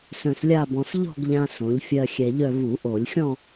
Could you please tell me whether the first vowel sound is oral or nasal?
nasal